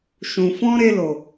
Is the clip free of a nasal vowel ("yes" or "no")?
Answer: no